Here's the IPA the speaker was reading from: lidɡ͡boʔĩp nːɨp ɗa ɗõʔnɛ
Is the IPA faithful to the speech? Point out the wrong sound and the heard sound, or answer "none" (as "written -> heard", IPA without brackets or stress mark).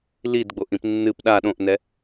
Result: none